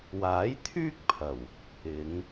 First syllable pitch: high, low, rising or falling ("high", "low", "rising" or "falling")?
rising